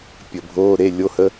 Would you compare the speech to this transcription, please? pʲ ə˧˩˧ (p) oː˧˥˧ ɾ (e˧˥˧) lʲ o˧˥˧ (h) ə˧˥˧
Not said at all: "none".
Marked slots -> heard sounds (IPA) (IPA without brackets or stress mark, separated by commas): bʱ, e˧˥˧, h